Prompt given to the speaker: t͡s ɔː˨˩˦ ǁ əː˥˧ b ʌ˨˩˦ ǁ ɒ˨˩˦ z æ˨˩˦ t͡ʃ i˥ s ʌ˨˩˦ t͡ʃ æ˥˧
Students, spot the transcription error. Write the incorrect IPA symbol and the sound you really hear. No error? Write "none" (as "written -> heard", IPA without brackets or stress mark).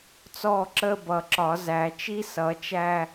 ɔː˨˩˦ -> ɔː˥˧